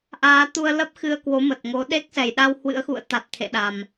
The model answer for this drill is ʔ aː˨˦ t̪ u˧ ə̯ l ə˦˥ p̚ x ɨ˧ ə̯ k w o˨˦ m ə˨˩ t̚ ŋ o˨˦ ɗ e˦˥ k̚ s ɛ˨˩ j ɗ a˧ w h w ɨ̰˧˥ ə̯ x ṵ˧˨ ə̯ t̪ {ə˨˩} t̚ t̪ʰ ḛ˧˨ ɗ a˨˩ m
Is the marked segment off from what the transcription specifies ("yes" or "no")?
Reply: yes